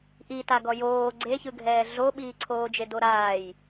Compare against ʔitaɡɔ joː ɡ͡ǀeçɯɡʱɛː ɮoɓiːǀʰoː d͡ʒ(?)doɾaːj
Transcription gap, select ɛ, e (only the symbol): e